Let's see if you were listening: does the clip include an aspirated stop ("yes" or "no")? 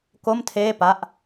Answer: yes